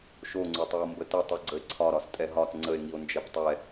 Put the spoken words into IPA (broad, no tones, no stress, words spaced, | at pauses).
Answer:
ʃoŋ͡ǀotˤio̯ mbətətˤɨ ɡ͡ǀəe̯ǀʰɒ ɾɒstʼɛɦɒt ŋ͡ǀəe̯ŋio̯ nd͡ʒɛptˤɛ